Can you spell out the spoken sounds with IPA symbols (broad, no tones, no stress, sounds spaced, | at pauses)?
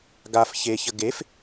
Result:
ɡ a f ç e ç ə ɡ e f